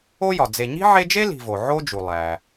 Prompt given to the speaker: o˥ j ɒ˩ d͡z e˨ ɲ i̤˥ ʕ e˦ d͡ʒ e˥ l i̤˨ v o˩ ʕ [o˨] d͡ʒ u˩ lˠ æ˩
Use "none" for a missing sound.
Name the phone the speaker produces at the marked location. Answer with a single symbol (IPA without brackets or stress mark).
o˥